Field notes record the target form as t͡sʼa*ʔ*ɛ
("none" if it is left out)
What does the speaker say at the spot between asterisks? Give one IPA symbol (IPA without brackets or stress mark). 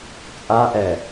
ʔ